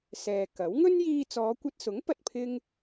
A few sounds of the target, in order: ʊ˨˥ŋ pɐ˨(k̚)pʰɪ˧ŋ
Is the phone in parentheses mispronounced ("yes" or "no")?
yes